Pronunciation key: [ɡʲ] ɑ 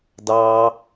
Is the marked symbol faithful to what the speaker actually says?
no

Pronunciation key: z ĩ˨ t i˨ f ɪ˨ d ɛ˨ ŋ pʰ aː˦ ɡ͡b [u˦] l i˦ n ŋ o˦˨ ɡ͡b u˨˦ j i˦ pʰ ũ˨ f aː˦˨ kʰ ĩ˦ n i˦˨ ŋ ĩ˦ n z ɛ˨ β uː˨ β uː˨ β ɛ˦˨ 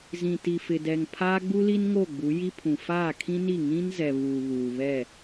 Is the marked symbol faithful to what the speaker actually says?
yes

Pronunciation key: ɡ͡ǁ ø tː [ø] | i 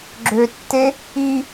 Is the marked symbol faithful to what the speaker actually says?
no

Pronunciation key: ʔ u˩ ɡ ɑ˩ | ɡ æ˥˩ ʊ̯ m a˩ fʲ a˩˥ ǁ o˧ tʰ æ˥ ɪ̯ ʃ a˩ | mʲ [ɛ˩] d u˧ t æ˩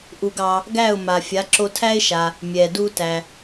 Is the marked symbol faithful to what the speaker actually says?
yes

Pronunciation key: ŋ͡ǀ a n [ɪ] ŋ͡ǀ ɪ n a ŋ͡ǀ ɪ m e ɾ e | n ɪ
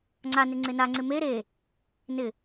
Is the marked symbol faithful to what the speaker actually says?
yes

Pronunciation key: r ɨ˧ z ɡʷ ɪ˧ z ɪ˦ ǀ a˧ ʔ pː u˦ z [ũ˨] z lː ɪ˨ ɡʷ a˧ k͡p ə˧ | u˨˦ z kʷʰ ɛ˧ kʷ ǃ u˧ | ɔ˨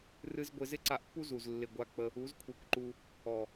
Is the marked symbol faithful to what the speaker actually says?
no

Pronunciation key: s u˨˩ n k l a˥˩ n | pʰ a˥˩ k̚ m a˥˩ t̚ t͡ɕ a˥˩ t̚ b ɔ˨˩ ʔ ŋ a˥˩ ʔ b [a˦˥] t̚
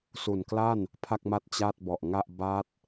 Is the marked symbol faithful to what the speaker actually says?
yes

